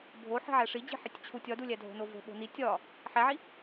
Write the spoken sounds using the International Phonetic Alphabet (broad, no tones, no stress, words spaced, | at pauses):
bʱo ħi̤ʕæʂid͡ʑi̤ ħetʲt͡ɕʰutʲ ɒdulʲæ dʱo̤novo̤ ɓo̤ni tʲɒ | ħæʕi